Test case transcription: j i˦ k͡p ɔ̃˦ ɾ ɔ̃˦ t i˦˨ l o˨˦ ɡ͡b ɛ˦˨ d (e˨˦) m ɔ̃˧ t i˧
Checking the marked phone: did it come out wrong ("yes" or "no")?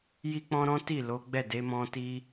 no